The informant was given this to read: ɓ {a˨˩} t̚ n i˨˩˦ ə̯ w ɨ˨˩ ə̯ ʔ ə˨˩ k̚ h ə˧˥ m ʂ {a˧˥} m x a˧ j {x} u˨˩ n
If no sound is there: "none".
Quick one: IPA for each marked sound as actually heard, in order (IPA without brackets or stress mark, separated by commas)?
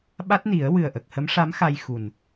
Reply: a˦˥, a˧˥, x